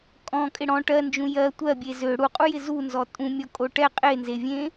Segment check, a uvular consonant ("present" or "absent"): present